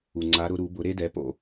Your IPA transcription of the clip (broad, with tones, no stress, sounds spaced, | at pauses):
u˨ ŋ͡ǀ a˧˥ ɾ ʊ˧˥ ɾ u˩˥ b ʊ˧˥ ɾ e˥ d ɛ˩˥ p o̰˨